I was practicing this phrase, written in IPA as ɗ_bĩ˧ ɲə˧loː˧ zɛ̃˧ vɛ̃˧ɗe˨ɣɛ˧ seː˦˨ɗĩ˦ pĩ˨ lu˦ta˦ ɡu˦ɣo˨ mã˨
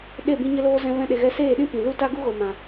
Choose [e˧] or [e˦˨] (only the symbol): e˦˨